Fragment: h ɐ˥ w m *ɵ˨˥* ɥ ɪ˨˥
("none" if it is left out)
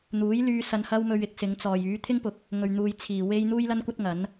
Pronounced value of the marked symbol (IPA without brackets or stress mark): ɵ˧